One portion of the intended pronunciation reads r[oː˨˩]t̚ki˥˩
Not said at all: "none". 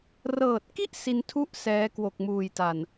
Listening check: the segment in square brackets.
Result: ɤː˨˩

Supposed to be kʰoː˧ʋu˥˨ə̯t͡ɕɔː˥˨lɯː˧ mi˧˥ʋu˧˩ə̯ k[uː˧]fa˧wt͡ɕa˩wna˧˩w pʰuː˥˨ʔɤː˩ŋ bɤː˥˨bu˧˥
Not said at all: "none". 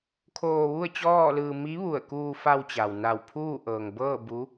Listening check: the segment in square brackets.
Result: uː˧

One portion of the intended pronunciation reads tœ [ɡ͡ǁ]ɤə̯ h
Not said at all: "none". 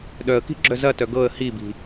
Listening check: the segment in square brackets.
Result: ɡ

